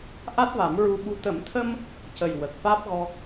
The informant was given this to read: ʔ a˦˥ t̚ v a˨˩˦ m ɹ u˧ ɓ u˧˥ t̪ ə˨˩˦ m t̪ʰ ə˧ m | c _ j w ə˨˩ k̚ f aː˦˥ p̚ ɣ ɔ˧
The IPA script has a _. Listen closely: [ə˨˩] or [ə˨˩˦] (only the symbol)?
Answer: ə˨˩